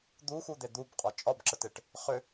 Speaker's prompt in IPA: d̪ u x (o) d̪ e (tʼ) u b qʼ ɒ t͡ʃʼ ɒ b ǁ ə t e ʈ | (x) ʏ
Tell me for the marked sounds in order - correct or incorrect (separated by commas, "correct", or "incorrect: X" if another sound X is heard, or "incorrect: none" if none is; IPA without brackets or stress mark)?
incorrect: u, incorrect: d̪, incorrect: χ